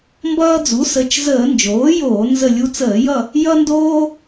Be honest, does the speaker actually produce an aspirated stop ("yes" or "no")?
no